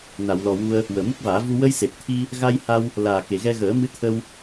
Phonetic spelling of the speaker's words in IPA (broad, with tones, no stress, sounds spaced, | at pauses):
n a˨˩˨ w l ɔ˨˩ w u˧ ə̯ | w əː˨˩ m u˦˥ k̚ v aː˨˩˦ v u˧ w ə˧ j s e˨˩ p̚ t̪ʰ i˧ | ɣ a˧ j h a˧ w | l aː˨˩ k e˨˩˨ ɣ ɛ˧ ɣ əː˨˩˦ m ɨ˧˥ t̪ʰ ə˧ w